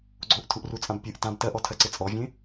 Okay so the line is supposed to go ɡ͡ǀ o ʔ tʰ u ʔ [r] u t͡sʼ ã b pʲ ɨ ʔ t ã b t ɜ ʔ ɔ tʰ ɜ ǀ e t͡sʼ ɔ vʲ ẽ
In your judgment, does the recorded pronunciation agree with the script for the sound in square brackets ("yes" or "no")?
yes